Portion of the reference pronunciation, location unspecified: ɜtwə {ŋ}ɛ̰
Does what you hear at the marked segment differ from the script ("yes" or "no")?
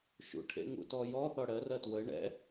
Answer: yes